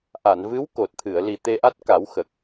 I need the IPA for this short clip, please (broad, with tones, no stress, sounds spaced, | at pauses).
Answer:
ʔ a˨˩˨ n v ɨ˧˥ w k o˨˩ t̚ t̪ʰ ɨ˨˩˨ ə̯ l i˨˩ t̪ e˧ ʔ a˦˥ t̚ k a˨˩˦ w x ə˨˩ k̚